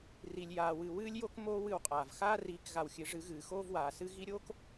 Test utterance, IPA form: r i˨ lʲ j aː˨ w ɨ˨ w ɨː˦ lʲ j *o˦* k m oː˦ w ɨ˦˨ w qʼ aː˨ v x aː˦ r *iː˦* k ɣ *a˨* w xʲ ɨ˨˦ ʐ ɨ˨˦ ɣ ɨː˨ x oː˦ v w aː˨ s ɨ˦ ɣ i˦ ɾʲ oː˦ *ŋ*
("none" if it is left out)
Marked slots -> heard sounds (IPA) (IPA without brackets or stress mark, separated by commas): o˦, iː˨˦, a˨, k